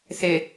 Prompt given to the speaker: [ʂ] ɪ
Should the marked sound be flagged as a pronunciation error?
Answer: yes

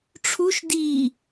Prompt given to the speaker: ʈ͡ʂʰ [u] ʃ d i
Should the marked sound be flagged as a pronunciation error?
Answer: no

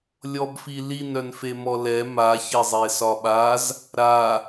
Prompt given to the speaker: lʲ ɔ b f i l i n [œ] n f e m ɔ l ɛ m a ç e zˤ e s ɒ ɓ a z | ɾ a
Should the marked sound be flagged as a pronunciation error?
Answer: no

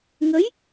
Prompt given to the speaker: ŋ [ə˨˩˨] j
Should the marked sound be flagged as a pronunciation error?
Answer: yes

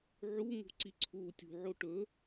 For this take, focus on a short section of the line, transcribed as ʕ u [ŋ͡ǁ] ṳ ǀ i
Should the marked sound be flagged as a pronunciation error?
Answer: yes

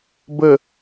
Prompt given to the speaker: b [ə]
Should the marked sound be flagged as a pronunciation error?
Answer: no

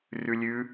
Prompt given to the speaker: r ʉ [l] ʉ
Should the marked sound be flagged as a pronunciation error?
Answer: yes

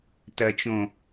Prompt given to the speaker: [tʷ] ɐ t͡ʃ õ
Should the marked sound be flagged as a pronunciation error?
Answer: yes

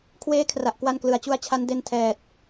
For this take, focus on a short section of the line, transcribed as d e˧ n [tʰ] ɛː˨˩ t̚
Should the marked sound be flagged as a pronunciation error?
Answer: no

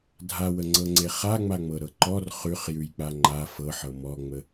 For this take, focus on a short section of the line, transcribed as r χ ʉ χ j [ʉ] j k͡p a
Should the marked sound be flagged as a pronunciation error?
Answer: no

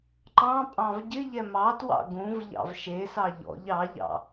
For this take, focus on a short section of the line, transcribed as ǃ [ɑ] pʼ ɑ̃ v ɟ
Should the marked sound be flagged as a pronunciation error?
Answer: yes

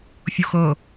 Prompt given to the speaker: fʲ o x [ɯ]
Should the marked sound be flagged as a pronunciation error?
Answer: yes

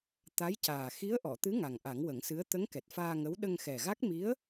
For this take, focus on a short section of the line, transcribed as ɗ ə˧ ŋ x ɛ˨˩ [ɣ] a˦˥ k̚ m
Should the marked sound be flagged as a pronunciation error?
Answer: no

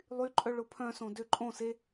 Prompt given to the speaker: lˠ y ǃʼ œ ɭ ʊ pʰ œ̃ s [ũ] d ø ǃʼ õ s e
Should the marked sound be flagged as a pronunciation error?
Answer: yes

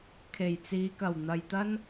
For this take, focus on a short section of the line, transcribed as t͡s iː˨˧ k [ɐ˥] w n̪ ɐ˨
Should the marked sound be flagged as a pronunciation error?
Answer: yes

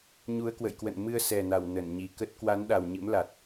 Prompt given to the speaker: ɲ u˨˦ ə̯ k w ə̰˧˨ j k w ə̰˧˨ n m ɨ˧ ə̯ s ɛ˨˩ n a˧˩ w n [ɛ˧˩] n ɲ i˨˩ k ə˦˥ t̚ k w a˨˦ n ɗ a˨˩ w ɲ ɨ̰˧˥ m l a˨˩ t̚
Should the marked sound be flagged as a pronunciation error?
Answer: yes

